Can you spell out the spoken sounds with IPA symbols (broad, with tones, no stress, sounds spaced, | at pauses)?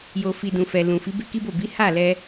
j o˨ f i˨ d ũ˨ f ɛ˨ l ũ˨ f i˨˦ b e˦ k i˦ b o˦˨ b i˨˦ h a˦˨ l ɛ˧